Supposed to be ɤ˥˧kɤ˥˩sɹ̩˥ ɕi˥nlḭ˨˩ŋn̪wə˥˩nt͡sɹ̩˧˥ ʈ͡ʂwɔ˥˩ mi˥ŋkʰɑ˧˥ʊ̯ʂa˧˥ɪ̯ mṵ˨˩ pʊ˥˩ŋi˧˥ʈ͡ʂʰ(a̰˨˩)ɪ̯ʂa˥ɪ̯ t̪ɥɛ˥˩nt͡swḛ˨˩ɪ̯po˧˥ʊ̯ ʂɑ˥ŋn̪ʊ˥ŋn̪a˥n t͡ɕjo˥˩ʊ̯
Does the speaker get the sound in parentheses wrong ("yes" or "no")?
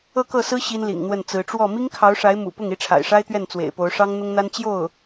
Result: no